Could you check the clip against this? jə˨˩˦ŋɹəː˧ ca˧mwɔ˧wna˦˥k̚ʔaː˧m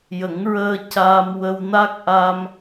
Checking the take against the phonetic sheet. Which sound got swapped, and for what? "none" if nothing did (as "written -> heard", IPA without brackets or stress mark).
ɔ˧ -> ə˧